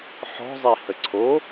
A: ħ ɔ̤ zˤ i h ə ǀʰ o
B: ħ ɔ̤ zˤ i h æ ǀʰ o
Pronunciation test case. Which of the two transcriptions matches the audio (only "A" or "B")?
A